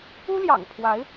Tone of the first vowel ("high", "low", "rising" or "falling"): high